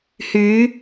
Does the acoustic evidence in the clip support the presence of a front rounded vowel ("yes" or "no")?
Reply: yes